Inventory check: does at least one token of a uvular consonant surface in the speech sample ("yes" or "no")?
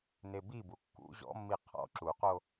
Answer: yes